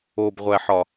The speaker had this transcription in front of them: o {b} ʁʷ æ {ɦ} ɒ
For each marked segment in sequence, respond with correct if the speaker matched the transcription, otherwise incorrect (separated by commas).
correct, incorrect